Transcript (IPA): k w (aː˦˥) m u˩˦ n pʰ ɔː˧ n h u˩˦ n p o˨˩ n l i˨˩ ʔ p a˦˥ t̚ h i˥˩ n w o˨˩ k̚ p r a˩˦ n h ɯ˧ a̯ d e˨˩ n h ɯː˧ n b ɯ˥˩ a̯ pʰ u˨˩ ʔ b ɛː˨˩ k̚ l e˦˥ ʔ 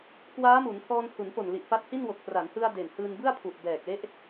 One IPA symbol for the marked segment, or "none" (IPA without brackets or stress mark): aː˦˥